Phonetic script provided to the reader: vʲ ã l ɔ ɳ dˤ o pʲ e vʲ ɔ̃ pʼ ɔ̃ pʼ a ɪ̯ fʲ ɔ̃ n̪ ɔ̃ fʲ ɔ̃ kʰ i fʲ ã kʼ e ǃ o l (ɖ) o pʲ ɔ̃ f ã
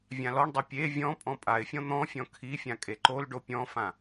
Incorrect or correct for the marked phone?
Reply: correct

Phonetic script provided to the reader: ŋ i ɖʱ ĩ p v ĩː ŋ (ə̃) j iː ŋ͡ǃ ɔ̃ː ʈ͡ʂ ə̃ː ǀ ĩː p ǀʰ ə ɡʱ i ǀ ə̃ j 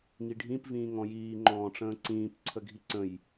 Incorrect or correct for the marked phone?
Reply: incorrect: ɔ̃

